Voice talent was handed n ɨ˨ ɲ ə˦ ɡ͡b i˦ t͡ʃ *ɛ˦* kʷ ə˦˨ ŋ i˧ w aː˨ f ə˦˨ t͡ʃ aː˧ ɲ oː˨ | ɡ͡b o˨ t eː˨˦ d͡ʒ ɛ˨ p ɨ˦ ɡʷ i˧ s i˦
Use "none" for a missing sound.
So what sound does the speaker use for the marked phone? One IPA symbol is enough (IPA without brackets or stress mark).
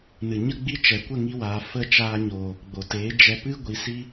ɛ˨